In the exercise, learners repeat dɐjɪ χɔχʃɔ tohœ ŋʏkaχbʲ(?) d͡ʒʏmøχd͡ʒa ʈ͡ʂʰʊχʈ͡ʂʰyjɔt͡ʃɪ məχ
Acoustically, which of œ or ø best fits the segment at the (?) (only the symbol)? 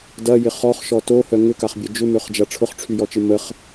œ